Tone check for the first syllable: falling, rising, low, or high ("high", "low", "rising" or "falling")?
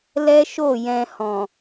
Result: high